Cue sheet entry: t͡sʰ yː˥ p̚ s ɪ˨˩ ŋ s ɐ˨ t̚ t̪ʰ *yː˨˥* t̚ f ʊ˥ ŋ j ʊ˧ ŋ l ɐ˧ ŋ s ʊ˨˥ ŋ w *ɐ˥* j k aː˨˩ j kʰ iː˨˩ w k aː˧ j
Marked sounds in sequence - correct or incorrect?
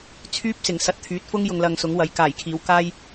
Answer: correct, incorrect

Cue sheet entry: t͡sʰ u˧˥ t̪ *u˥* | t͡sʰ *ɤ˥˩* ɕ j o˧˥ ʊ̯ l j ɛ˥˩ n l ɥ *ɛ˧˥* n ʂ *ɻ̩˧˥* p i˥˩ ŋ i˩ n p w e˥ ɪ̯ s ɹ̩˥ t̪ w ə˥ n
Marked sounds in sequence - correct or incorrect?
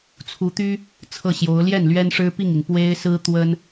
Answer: incorrect, correct, incorrect, incorrect

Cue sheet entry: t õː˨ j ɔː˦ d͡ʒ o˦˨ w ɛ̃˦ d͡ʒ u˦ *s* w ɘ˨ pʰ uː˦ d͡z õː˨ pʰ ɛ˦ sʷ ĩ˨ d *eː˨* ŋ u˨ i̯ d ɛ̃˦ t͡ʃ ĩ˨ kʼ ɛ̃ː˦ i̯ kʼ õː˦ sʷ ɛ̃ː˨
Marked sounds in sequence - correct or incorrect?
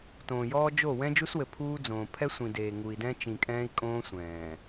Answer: correct, correct

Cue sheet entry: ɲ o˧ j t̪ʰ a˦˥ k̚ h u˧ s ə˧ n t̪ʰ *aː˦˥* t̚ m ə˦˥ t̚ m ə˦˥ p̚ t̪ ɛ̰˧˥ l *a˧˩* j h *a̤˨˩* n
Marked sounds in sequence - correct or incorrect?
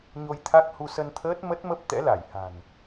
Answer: incorrect, correct, correct

